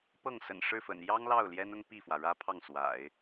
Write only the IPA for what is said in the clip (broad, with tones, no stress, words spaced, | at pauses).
pɤ˥˩ŋsə̰˨˩n ʂɻ̩˥˩fə̰˨˩n jɑ˥ŋlɑ˥˩ʊ̯ ljɛ˥nʊ˥ŋpi˥˩fwä˩ ɻä˥pʰɑ˥˩ŋswa̰˨˩˦ɪ̯